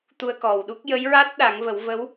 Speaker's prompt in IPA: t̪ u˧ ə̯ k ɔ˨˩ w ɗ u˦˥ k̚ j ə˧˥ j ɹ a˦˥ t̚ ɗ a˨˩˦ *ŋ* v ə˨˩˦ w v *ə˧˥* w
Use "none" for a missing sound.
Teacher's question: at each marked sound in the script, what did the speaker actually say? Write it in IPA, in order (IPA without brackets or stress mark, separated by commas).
ŋ, ə˧˥